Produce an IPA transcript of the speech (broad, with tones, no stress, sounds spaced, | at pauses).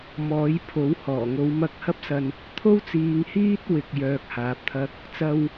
m ɔː˨˥ j pʰ o˨˥ w h ɔː˨˩ ŋ o˨˧ w m ɐ˧ k̚ h ɐ˥ p̚ s ɐ˧ n | t̪ʰ o˥ w t͡s iː˨˧ ŋ h iː˥ t̚ w ɪ˨ k̚ j œː˨ k̚ h aː˨ p̚ t̪ʰ ɐ˥ k̚ | t͡s ɐ˧ w